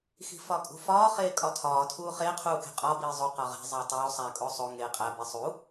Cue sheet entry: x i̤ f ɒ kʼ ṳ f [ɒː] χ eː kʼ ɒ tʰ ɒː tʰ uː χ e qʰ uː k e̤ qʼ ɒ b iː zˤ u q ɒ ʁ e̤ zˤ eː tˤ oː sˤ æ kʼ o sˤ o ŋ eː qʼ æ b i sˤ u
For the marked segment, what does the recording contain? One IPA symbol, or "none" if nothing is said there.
ɒː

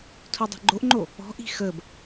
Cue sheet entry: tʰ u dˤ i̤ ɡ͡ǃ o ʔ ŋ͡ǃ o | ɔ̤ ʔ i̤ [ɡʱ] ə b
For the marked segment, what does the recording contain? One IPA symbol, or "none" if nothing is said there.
x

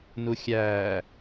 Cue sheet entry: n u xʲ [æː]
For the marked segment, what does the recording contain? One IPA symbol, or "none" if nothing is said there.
æː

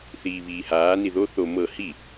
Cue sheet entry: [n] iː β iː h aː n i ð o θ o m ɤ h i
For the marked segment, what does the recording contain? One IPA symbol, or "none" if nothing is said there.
θ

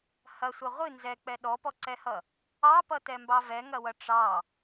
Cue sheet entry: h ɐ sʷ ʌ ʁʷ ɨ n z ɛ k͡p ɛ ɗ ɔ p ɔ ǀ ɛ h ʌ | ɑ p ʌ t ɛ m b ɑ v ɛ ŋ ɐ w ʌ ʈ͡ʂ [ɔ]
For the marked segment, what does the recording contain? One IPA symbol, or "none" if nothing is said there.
ɑ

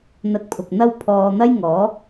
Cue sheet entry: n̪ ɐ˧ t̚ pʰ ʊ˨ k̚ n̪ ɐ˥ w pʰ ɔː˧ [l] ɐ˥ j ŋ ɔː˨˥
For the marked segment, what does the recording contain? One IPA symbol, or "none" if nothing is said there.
n̪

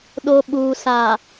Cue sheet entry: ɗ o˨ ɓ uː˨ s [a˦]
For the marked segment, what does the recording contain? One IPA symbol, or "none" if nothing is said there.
a˨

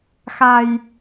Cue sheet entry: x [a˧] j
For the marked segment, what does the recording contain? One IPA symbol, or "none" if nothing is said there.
a˧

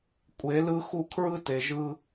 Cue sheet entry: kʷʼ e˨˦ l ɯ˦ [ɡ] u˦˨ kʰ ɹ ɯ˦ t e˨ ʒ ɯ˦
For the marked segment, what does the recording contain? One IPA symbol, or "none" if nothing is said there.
x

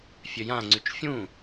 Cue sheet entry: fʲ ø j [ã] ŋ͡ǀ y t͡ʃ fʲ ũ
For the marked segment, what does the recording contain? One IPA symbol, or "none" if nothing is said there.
ã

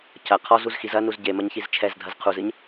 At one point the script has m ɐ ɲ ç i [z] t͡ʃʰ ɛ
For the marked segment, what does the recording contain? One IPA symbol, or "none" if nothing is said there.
z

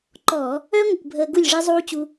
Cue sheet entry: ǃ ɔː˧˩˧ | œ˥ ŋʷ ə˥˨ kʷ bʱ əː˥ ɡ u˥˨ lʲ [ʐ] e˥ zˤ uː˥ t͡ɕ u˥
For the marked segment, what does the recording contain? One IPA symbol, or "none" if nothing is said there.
ʐ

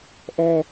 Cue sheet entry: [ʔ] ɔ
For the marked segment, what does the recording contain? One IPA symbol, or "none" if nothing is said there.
ʔ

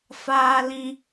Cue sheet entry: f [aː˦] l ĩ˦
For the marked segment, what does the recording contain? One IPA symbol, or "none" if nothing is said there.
aː˦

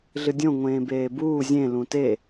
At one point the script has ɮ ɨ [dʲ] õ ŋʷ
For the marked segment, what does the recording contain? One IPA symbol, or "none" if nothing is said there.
dʲ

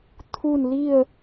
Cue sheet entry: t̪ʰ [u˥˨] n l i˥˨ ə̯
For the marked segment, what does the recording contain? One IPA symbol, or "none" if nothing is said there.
u˥˨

